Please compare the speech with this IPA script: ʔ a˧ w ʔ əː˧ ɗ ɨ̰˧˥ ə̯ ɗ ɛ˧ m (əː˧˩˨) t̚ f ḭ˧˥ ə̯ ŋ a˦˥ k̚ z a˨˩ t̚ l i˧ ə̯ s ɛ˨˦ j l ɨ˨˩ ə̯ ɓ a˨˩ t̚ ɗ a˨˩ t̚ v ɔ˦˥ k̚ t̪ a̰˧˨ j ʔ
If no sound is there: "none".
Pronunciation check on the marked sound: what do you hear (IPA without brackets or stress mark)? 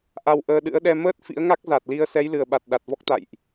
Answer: əː˦˥